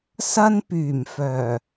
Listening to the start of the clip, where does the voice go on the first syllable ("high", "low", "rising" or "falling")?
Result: high